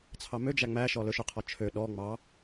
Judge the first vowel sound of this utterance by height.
low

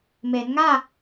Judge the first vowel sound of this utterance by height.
mid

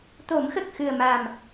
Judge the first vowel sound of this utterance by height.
mid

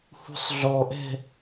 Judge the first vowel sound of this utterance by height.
high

